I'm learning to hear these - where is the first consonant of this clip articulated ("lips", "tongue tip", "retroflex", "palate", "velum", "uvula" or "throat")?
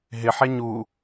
throat